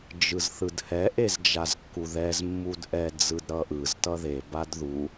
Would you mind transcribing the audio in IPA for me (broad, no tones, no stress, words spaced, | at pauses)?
d͡ʒɯzθɯdhɛ ʔezd͡ʒazkːuðɛz mːudʔɛ d͡zɯdɾʌʔɯz tʌðe badðu